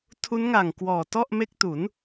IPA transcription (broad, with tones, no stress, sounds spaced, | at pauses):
tʰ u˦˥ n ŋ a˨˩ ŋ k w ɔː˨˩ t ɔ˥˩ ʔ m e˦˥ k̚ t u˩˦ n